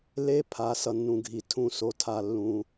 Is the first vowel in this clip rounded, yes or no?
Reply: no